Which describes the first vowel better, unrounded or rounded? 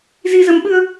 unrounded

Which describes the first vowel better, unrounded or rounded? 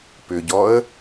rounded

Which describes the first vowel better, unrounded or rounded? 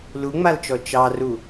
rounded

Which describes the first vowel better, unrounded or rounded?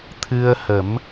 unrounded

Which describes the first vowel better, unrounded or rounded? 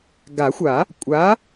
unrounded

